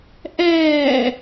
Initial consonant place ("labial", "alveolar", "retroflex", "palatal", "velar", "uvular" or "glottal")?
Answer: glottal